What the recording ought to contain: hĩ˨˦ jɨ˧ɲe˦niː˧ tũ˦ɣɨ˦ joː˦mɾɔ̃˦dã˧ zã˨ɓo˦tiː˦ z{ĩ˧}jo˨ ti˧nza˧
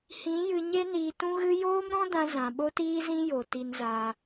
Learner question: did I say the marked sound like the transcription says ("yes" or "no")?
no